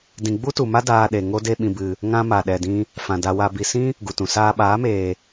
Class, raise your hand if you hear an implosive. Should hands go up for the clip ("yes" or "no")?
yes